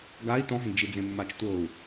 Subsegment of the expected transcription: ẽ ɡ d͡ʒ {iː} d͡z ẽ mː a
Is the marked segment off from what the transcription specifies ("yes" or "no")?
yes